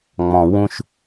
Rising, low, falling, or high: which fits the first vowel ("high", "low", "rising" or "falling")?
low